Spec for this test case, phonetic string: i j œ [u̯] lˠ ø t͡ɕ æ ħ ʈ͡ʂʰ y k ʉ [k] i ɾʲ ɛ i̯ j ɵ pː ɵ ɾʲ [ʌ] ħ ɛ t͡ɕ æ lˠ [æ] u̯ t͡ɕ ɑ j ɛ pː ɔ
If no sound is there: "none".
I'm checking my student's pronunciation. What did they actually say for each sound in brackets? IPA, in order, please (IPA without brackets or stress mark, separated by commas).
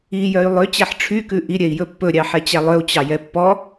y̯, ʔ, ɑ, œ